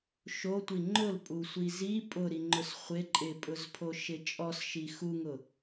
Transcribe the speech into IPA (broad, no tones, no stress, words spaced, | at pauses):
ʃotʷi ŋ͡ǃʊlpʼusʷi zi pʼʊɾiŋ͡ǃʊs χʷɪ ǃʼɪpʼʊzpʰoʃɪ t͡ʃʼɔsʃi xuŋʊ